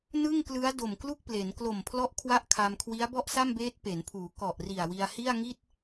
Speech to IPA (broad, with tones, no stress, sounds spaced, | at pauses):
n ɯ˥˩ ŋ k l ɯ˦˥ a̯ d o˨˩ m k l u˥˩ k̚ p l e˩˦ n k l o˨˩ m pʰ l ɔ˦˥ ʔ kʰ w a˥˩ ʔ kʰ a˧ m kʰ w i˦˥ a̯ b ɔ˥˩ ʔ s a˥˩ m b eː˦˥ t̚ p e˩˦ n pʰ uː˩˦ k ɔ˨˩ ʔ r i˨˩ a̯ w i˧ a̯ h i˥˩ a̯ ŋ i˥˩ t̚